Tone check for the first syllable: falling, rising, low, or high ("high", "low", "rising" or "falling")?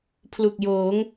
low